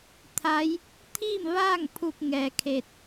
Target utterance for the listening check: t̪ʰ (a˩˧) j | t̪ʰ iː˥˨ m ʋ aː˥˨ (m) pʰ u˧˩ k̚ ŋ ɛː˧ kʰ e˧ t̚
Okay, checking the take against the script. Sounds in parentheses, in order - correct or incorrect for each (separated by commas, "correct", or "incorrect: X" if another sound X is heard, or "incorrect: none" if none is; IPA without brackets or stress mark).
incorrect: a˧˥, incorrect: ŋ